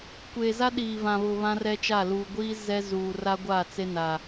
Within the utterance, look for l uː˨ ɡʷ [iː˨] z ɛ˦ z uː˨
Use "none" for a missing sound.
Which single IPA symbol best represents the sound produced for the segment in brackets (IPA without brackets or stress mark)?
iː˦